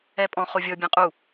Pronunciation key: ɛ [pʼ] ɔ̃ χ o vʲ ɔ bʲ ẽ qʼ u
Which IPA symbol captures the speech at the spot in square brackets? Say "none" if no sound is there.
pʼ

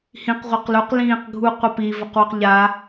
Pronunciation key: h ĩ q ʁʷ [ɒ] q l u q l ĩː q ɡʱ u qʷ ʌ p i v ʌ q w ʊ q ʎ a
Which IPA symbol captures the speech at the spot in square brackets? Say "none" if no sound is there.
ʌ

